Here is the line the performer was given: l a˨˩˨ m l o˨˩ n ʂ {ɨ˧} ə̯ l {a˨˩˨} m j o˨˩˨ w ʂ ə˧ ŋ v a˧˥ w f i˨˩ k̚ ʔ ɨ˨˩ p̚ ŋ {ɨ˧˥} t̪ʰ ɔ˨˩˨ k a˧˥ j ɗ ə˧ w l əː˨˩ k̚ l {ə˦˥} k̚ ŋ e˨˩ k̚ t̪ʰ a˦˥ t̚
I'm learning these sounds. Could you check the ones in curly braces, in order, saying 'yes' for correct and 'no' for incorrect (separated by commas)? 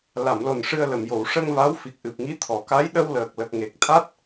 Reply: yes, no, no, no